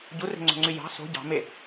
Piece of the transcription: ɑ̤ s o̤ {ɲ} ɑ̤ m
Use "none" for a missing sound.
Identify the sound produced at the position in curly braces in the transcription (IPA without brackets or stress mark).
ɟ